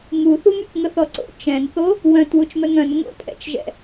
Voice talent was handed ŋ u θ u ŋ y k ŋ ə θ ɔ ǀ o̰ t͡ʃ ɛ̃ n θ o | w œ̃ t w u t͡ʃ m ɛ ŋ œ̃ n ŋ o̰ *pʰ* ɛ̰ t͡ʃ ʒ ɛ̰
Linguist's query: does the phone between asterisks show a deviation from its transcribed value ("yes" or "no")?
no